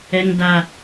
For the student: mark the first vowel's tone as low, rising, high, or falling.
high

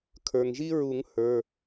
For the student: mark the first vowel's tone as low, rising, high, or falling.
low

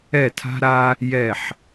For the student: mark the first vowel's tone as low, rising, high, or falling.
falling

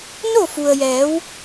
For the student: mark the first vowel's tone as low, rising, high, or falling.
falling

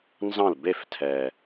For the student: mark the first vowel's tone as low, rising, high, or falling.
falling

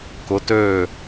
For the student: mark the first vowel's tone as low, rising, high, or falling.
rising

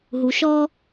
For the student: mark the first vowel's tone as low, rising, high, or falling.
low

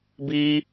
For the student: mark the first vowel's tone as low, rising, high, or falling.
high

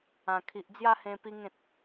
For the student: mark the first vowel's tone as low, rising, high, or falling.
low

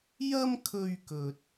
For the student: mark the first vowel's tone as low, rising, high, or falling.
high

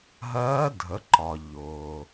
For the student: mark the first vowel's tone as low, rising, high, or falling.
rising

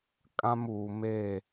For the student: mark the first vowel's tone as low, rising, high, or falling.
high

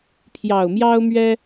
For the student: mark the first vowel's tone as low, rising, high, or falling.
low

